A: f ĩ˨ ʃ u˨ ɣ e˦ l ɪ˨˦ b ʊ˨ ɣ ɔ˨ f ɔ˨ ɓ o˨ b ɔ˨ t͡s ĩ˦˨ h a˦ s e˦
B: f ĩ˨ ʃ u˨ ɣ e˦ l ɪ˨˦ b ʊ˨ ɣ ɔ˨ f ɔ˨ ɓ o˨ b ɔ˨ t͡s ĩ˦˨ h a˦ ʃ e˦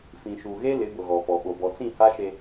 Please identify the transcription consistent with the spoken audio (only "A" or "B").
B